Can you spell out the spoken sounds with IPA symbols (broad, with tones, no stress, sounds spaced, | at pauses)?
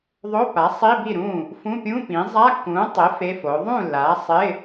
ðˤ o˧˥˧ p a˩˥ sˤ i˧˥˧ b i˥˩ ɾ ũː˥˩ | f ũ˧˥˧ pʲ ũ˧˥˧ p ĩ˩˥ zˤ a˧˥˧ kː ũː˩˥ tˤ e˩˥ f e˧˥˧ f oː˩˥ ðˤ ũ˥˩ lː aː˩˥ sˤ ɪ˧˥˧